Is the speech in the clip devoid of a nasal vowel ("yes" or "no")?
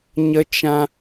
no